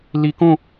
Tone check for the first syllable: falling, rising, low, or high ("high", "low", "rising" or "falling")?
low